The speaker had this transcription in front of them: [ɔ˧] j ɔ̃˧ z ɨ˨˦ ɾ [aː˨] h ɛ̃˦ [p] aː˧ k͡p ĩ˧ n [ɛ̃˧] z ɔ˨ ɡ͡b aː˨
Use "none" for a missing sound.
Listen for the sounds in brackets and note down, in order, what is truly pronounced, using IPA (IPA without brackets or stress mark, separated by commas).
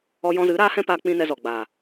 ɔ˧, aː˦, p, ɛ˧